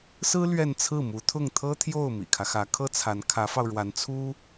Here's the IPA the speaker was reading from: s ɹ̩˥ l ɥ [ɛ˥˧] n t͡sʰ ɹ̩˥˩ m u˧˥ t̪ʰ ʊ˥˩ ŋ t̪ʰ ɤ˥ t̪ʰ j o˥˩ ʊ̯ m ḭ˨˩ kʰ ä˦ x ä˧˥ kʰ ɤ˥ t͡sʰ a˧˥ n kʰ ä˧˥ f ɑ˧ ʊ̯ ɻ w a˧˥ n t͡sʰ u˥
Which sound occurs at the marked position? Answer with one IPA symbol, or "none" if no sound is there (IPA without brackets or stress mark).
ɛ˥˧